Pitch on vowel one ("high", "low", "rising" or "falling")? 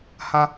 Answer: high